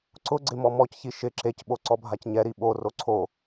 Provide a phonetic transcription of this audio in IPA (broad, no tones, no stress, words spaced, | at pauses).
ǀʊ ɡ͡ǀɪmɔmɔcçi ʃɪ ǁecɓo ǀɔbʱacɲɛɾi ɓoro ǀʰo